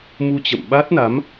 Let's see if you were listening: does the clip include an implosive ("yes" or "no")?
yes